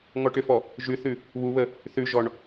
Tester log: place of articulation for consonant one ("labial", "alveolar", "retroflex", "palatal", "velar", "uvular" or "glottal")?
velar